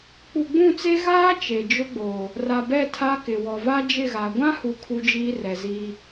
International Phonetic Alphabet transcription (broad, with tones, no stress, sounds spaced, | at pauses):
k͡p u˨ ɡ͡b ũ˦˨ t͡s e˦ ɣ aː˦ t͡ʃ e˨ d͡ʒ ʊ˦ ɡ͡b oː˨ | r a˨ b ɛ˦˨ tʰ a˦ k ɪ˨ w ɔ˨ v a˦ d͡ʒ ɪ˦˨ ɣ a˨ ɡʷ ã˦ h u˨ kʰ u˦ d͡ʒ iː˦ r ɛ˨ z iː˦